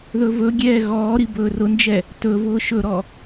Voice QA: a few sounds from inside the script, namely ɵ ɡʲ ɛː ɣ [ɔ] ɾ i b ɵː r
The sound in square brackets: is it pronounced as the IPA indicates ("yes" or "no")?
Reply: no